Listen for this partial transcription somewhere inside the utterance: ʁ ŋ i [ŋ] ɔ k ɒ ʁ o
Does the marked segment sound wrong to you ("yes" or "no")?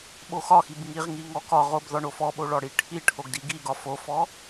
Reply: no